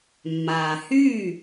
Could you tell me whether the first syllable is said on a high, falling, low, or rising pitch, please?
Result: low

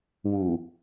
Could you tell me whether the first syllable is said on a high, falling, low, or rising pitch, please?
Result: low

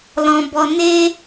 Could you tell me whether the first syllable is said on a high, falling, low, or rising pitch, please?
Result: low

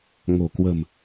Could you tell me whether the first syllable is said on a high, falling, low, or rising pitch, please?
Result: low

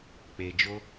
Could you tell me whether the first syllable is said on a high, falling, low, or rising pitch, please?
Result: low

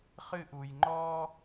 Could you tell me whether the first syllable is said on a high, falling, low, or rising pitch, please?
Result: high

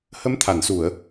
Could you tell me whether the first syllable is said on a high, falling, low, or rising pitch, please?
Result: rising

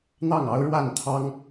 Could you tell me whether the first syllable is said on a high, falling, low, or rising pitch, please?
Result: falling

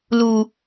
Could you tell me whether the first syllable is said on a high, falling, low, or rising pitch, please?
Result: low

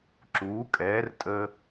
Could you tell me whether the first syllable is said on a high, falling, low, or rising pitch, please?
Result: rising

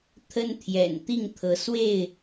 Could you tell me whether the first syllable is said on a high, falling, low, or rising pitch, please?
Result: high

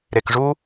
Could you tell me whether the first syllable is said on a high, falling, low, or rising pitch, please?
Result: low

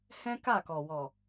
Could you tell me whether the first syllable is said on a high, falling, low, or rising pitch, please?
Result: high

